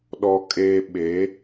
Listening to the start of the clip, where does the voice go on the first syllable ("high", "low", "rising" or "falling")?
low